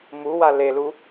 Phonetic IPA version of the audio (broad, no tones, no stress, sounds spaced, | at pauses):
m u w a l e l u